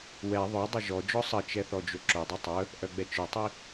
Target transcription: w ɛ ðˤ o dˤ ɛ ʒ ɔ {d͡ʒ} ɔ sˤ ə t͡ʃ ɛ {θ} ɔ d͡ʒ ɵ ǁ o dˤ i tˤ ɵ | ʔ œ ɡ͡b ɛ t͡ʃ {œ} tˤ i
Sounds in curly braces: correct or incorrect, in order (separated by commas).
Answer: correct, correct, correct